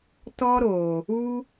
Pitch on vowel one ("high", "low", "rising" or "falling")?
high